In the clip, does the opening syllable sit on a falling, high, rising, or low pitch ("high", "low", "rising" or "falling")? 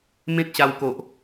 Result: high